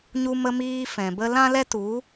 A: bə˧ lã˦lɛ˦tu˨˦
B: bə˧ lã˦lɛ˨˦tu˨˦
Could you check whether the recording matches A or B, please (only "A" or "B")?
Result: A